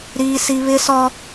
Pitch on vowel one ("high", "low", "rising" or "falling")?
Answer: high